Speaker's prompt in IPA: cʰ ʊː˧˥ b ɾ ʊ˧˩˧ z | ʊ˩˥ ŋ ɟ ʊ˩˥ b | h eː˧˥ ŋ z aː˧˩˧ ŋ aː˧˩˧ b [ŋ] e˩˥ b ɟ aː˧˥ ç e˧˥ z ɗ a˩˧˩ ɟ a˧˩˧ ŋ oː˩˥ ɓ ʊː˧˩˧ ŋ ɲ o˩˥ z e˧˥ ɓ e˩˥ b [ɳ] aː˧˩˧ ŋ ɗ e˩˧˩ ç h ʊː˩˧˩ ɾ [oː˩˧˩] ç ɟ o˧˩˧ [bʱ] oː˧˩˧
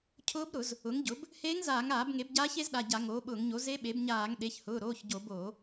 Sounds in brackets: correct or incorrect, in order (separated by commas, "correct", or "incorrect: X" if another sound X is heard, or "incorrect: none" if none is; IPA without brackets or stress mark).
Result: correct, incorrect: ɲ, correct, incorrect: b